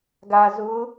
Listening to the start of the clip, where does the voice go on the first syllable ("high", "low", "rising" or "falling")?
low